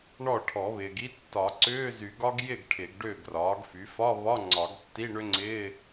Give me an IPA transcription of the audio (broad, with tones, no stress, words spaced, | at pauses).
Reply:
ɳɔ˥˩ʈʰɔ˨˩˦βɪː˨ɡi˦˥ tːɒ˨˩˦ǀʏː˧˥˧zy˨˩˦ ɡɒ˦˥ɡ jɪ˥˩ɡ ʈʰɪ˨˩˦ɡɖʏː˥˩ɡrɒː˩˥ɡfy˩˥ fɒ˧˥˧βɒ˧˥˧ ŋ͡ǀɒ˨˩˦ɡtːi˧˥˧ɳʏ˦˥ŋ͡ǀɪː˧˥˧